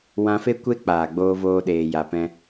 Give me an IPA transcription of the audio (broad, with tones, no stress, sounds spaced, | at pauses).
w ã˧ f e˦ kʷ e˦ k͡p aː˨ ɡ͡b oː˧ v oː˧ ɗ eː˨ j a˨ p ɛ̃˧